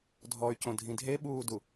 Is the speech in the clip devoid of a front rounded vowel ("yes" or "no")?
no